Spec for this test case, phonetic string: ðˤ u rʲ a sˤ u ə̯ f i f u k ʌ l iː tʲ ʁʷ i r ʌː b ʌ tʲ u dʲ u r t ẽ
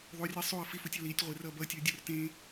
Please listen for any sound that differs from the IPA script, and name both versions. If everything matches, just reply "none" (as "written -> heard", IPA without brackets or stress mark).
k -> tʲ